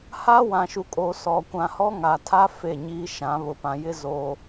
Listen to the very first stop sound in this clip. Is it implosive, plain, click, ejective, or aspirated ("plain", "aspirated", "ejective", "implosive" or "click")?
ejective